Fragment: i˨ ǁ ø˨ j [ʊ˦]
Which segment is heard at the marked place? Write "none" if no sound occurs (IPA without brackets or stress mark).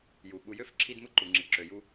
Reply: u˦